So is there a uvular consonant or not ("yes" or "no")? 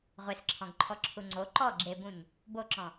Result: yes